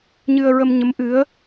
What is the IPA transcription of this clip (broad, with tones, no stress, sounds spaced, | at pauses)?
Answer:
ɲ ɨ˧ ə̯ ɹ ə˧ m ɲ ə˧˥ m ʔ ɨ˧˥ ə̯